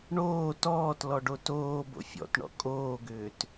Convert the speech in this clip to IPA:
ɳoː tɔːtlɔɖo toːbo̰ fʲɔ̰tɳɔ̰ kʼoːɡʏːt

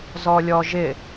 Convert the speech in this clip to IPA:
zɔlʲɔʒɪ

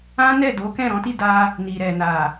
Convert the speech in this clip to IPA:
ã˦nɛ˦˨do˨˦ kɛ̃˦˨ɾɔ̃˨˦ti˦˨da˧ | ni˨ɾɛ˨na˨

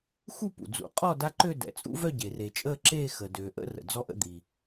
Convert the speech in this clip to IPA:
xu˥˨pṵ˩d͡zṵ˨˩˦qʼɔ˥˨ da˦ǃø˥˨ dɛ̰˩t͡sʼṵ˦vœ˥˨ɟe˩ re˩t͡ʃʼəː˥˨ ǁeː˥˨ xəː˩døː˩ʔə̰˥˨ rə̰˩d͡zɔ˦ʔə̰˥˨ d̪i˩

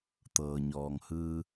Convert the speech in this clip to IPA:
t̪ɤː˩ɲɔː˩ŋhɯː˧

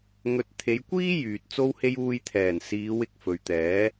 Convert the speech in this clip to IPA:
ŋɵ˧t̚ t̪ʰe˨˧jkʷiː˥ jyː˨t̚t͡so˥whe˥j uː˧jt̪ʰɛː˨˩nsiː˨˧w ɪ˥k̚fɵ˨ɥ t̪ɛː˨˥

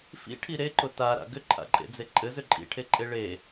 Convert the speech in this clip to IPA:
fḭʈʰi ɾeǃʊ taɾa̰ ɡʏǃʰa̰ǃʼḛd͡ze ǃʼɘzʏ ǃʼḭʈʰeǃʼe ɭe

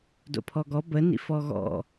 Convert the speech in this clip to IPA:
do̰pʰɔɡɔ bə nḭfɔɣɔ̰

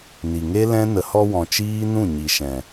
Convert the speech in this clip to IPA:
ni˨ŋe˦ lɛ̃˦ nə˨hɔ˧ wɔ̃˨ t͡ʃiː˦nũ˦˨ ɲi˨ʃɛ̃˨

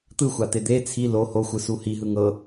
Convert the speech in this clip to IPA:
t̪ɯxʷat̪e d̪e t͡sʰi lo hoxʷɯsu hiɦɯ ŋɤ

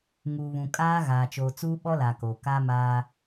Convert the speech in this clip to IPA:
ŋuː˨βũ˨kʼaː˦ɣaː˨ t͡ʃoː˨t͡suː˦ ɓɔ˦la˨koː˨ ka˦maː˦

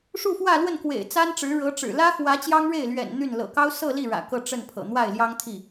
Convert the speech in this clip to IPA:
ʂu˥˧fwä˥˧lwə˥˩nkwḛ˨˩ɪ̯ t͡sa˥nʈ͡ʂɻ̩˧˥ɻɤ˧˥ʈ͡ʂɻ̩˨˩ lä˥xwä˧˥ t͡ɕjɑ˥ŋɻe˥˩ɪ̯ lɥɛ̰˨˩n n̪y˥˩n lɤ̰˨˩kɑ˥ʊ̯ sɤ˥˧ li˥˩ɻä̰˨˩ kɤ˥˧ʈ͡ʂə˥˩npʰɤ̰˨˩ n̪wa˥˩ɪ̯ljɑ˥ŋt̪ʰi˥˩

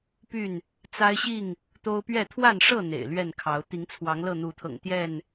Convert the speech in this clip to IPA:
py˥˨n | t͡sa˦ɪ̯ɕi˥˨ŋ | t̪o˦ʊ̯pɥɛ˥˨ t̪ʰwa˥˨nʂɤ˥˨ n̪ḛ˨˩ɪ̯lɥɛ˥˨nkʰɑ˨˦ʊ̯ t̪i˨˦ŋt͡sʰwɑ˨˦ŋ lɤ˥˨n̪u˨˦t̪ʰɤ̰˨˩ŋ t̪jɛ˥˨n

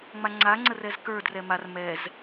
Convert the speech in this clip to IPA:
ŋ͡maŋ͡ǀaŋ͡ǀər ɛzkə˞drɛ mar mɛz

